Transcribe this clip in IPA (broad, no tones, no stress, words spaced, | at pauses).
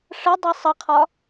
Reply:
ʂədˤi sˤəqʰɒ